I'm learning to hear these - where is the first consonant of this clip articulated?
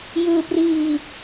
palate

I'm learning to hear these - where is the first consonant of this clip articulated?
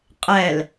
uvula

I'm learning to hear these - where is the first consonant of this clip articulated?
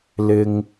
tongue tip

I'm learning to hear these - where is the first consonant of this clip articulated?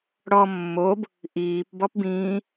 retroflex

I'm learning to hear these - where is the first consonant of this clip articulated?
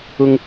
velum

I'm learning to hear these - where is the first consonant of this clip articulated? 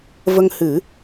lips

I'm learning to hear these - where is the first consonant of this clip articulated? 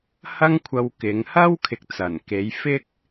throat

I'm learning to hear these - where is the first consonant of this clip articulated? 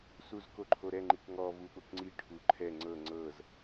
tongue tip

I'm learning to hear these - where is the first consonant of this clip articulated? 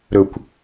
tongue tip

